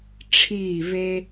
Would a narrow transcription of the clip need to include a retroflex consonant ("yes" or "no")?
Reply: yes